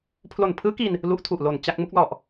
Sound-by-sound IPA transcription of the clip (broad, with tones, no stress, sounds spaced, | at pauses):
pʰ l o˨˩ n pʰ ɯː˦˥ k i˧ n | l u˦˥ ʔ tʰ u˨˩ ʔ l o˨˩ n t͡ɕ a˥˩ k̚ m u˥˩ k̚ l ɔ˨˩ ʔ